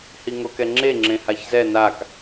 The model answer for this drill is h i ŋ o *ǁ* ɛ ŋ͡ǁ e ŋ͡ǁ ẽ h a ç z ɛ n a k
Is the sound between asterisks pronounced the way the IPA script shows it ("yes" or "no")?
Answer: no